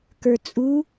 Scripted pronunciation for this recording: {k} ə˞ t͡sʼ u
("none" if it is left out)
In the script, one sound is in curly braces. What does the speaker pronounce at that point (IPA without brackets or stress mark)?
k